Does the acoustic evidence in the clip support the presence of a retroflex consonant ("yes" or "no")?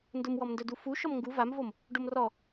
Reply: yes